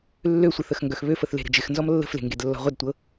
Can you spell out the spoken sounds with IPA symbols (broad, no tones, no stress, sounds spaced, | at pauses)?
lː ø sʷ i θ ə x ŋ ɡ œ x β ø f ə θ l e̤ ɾ ə̤ d͡ʒ ɪ x n z ɔ m lː ə̤ f l e̤ ŋ ɡ e d lː ɔ̤ ʁʷ ə d tʷ ɤ